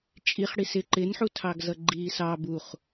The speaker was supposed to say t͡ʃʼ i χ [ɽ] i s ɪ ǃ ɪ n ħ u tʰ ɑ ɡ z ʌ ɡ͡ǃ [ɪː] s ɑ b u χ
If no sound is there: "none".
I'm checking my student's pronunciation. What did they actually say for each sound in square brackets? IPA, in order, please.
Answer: ɽ, iː

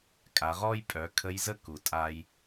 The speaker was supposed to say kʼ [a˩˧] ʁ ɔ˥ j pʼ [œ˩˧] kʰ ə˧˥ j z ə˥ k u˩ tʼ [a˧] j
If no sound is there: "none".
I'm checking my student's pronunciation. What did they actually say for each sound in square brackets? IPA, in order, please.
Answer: a˩˧, œ˩˧, a˧

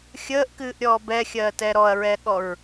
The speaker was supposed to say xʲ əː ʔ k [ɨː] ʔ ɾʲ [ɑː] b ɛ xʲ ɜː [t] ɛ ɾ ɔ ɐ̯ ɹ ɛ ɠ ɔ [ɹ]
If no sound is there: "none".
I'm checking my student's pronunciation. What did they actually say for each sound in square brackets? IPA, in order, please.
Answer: ɨː, ɔː, t, ɹ

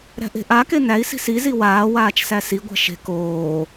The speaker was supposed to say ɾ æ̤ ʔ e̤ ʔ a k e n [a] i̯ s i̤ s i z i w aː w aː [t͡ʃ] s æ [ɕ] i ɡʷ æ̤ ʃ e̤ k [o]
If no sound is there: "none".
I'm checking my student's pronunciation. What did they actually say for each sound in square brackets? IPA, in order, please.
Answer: æ, t͡ʃ, s, oː

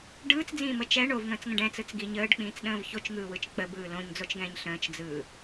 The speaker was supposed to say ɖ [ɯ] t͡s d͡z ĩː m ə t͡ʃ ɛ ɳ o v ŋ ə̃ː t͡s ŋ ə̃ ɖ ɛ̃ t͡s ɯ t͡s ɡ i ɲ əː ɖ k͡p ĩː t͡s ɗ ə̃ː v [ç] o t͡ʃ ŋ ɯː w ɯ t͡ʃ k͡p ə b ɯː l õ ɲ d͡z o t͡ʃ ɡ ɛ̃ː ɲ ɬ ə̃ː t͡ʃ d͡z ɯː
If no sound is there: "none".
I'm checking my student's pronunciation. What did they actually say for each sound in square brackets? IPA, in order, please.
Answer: ɯː, ç

